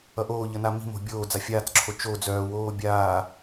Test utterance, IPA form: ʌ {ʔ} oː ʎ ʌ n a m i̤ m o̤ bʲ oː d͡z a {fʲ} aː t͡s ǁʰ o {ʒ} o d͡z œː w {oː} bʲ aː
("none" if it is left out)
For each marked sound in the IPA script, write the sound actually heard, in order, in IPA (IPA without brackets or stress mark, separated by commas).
ʔ, fʲ, t͡ʃ, oː